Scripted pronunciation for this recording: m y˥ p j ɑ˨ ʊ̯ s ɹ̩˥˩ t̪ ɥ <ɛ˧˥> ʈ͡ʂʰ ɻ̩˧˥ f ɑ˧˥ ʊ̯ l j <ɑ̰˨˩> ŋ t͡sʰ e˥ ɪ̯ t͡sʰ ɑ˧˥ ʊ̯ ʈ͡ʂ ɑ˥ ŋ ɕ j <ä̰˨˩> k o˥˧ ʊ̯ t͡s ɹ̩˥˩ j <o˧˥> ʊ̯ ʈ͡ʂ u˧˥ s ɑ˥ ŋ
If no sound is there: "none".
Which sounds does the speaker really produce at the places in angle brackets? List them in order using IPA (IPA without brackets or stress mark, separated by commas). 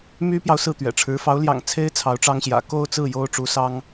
ɛ̰˨˩, ɑ̰˨˩, ä̰˨˩, o˥